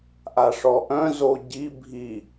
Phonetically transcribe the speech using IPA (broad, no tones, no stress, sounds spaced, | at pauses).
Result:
ʔ a ʂ ɔ ʔ œ̃ z o ɟ i bʱ i